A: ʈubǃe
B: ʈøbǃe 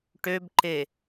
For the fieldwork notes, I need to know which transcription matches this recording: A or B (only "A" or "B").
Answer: B